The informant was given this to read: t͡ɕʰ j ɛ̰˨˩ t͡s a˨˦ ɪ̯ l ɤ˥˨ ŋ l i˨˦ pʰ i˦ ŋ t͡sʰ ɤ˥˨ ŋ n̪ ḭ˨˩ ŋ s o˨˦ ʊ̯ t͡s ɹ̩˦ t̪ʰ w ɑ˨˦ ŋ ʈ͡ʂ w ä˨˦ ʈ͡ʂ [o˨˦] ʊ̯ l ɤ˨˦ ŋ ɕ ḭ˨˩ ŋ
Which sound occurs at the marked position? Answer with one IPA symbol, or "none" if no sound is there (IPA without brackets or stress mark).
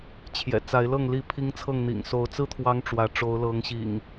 o˨˦